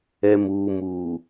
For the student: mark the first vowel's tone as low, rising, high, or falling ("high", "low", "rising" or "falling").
low